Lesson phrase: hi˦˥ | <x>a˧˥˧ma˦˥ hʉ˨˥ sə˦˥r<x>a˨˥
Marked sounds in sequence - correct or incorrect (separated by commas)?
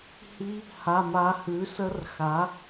incorrect, correct